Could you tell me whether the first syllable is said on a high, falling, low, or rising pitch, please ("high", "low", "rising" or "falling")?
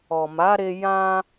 low